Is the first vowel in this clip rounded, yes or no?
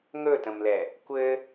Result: yes